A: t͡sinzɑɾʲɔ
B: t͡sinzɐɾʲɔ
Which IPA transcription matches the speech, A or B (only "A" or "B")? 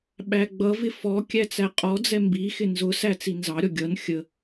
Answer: A